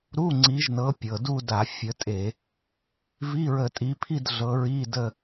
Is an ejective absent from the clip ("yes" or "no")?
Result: no